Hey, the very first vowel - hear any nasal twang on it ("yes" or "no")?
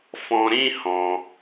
yes